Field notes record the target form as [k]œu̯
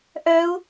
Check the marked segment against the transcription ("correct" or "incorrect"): incorrect